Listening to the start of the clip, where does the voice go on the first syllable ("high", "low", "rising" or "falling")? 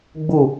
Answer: low